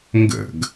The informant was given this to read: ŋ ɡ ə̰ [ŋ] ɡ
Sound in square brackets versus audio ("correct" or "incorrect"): incorrect